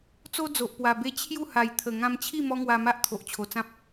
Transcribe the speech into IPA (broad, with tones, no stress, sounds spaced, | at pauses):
t͡s o˦ d͡z o˨ ʔ p w a˨˩ b e˦ t͡ɕʰ j u˥˧ h a˨˩ j t̪ʰ ə˨˩ ŋ ã˧ m t͡ɕʰ i˥˧ m ɔ˦ ŋ w a˧ m a˦ ʔ t̪ʰ o˨ ʔ t͡ɕʰ o˨˩ t͡s ã˦ p̚